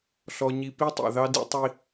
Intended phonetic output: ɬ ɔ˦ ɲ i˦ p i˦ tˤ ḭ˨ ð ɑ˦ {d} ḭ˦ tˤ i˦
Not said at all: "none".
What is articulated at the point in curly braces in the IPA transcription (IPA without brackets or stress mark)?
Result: d